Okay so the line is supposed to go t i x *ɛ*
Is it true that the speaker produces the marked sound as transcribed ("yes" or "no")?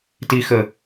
no